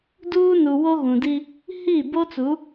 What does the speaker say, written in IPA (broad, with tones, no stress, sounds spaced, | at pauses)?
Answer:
d uː˦ n u˨ w o˦ ɣ ũ˨ d i˦ | h i˦˨ b o˦ t͡s u˨˦